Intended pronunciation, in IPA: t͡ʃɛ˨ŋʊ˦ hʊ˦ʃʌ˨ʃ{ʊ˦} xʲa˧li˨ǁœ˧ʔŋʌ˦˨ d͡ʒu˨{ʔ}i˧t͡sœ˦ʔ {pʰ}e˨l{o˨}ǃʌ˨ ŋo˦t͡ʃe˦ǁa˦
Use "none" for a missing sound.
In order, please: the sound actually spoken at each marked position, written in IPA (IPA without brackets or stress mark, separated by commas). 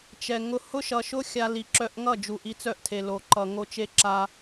ʊ˦, ʔ, tʰ, o˨